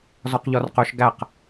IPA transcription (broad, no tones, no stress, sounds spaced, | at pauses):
z ɔ q ʎ ɔ r q ɵ ʃ ɡ æ q